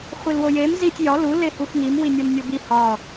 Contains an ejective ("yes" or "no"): no